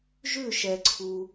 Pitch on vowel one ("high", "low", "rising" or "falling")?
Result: falling